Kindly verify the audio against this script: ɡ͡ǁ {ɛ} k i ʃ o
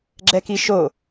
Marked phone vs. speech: correct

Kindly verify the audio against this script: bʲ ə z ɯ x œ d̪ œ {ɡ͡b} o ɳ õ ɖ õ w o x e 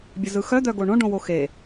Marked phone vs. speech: incorrect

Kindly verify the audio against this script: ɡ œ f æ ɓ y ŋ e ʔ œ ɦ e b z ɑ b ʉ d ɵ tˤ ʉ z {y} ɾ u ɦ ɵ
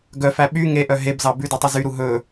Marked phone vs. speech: correct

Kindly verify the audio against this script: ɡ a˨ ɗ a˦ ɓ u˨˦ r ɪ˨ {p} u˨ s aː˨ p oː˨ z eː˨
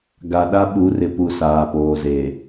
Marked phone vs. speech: correct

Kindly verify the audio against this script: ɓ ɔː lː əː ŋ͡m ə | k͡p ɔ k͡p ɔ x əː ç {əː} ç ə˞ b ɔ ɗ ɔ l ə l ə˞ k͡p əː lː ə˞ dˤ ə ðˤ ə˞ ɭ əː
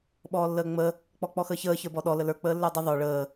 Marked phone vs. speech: correct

